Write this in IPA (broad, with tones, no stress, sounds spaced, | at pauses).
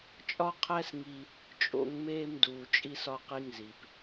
t͡ʃʼ ɒ˦ qʰ æ˦ s ŋ i˧ | t͡ʃʼ o̰˧ ŋ m eː˧ m d uː˨ t͡ʃʼ i˧ s ɒ˧ q i˧ ŋ z i˨ p